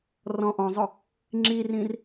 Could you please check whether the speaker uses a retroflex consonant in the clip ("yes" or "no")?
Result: no